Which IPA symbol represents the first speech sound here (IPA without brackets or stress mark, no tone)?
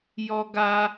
j